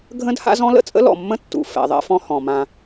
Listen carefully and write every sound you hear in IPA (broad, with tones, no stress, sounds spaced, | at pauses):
ɡʱ ə̃˦ d h a̰˦ z ɔ̃˦ l ə̰˦ t͡sʼ ə̰˦ l ɔ̰˨ mː ə̃˦ tː ṵ˨ f ɛ̰˨ ðˤ ɛ̰˦ f ɔ̃˦ h ɔ̃˨ m ã˦